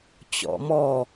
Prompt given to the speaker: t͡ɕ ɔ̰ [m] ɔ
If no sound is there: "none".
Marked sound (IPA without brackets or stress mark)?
m